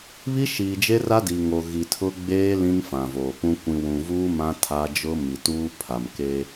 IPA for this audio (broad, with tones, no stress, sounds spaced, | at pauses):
β i˦ ʃ iː˨ d͡ʒ e˦ r a˦ d i˨ ŋ o˨ ɣ i˨ tʰ ʊ˦ ɡ͡b eː˦ l ĩ˦ n f ã˨ v oː˨ p ũ˦ kʷ ĩ˨ w ũ˨ v uː˦ m ã˦ tʰ a˦ d͡ʒ ʊ˦ m i˨ t uː˦ pʰ a˨ m k e˦